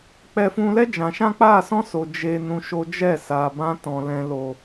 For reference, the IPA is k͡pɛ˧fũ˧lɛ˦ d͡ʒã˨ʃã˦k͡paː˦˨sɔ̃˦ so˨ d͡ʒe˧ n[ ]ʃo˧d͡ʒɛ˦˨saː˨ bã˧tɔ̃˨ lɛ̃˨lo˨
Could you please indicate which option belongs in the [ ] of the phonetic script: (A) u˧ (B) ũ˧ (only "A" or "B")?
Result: B